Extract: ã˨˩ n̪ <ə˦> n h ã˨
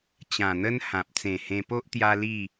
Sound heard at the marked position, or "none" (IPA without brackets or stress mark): ə˦